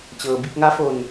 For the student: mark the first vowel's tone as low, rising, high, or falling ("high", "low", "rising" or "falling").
low